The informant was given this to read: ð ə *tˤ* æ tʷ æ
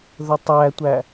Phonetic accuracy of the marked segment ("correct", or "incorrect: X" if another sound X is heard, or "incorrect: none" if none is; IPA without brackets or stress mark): correct